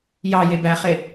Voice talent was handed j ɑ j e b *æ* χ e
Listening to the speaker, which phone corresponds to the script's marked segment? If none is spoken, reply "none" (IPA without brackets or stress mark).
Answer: æ